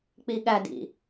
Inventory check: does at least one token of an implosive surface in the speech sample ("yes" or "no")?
yes